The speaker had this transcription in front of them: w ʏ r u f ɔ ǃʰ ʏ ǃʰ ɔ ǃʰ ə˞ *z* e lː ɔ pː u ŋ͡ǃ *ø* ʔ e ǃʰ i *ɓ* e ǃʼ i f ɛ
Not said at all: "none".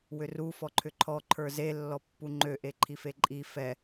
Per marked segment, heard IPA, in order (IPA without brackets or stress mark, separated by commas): z, ø, f